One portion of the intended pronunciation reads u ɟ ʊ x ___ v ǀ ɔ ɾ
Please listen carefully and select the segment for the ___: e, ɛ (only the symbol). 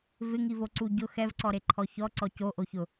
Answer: ɛ